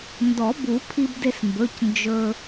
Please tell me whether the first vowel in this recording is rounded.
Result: yes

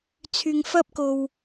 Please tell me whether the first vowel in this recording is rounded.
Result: yes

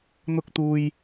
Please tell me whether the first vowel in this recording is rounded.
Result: yes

